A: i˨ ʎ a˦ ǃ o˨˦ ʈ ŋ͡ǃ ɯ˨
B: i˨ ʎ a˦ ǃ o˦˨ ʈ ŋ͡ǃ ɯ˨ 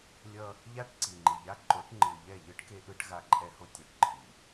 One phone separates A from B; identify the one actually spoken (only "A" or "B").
A